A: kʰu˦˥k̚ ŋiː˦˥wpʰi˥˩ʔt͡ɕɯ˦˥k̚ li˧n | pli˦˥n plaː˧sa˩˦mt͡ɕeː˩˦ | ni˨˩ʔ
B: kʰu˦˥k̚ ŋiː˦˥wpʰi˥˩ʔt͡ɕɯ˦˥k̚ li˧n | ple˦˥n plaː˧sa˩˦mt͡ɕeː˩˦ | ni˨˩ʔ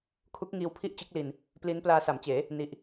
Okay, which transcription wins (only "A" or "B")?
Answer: A